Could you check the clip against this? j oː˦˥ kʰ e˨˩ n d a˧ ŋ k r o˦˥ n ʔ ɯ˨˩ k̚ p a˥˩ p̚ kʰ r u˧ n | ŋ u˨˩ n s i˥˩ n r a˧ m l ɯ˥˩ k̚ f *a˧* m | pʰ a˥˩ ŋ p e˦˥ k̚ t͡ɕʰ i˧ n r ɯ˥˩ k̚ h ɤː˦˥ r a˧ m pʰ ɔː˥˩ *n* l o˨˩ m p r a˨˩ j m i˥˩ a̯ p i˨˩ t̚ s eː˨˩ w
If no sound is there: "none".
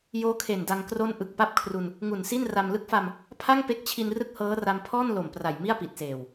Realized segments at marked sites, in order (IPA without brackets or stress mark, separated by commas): a˧, n